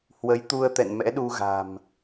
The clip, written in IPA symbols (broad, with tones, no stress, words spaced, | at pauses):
hwə˨˦jt̪u˧ə̯ t̪ɛ̰˧˨nmɛ̰˧˥ɗu˧ɣa̤˨˩m